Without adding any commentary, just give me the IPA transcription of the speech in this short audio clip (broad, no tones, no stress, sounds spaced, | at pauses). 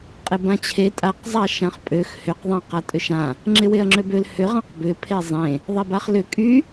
qʼ ɪ b ã t͡ɕʰ e tʼ a q zˤ a ʃ ã χ pʼ ø x h ʏ q ðˤ ã q a tʼ ʏ ʃ ã | ŋ͡ǁ ɪ w e ɐ̯ ŋ͡ǁ ø b ø l h ʏ ʁ ã q b ʏ pʰ e zˤ ẽ | ðˤ e b a χ l ʏ kʼ y